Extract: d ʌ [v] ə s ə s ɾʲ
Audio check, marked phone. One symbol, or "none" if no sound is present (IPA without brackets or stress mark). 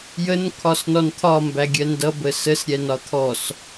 b